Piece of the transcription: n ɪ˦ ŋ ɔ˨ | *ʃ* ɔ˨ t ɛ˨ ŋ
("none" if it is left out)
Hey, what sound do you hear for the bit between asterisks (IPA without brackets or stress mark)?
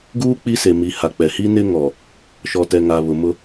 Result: ʃ